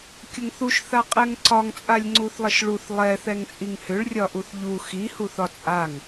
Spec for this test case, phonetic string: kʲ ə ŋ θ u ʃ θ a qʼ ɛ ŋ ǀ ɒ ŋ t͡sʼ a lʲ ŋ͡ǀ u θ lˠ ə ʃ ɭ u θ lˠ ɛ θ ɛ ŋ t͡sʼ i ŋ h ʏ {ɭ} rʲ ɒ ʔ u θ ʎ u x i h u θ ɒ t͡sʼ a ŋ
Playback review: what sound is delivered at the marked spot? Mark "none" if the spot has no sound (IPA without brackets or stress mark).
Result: ɭ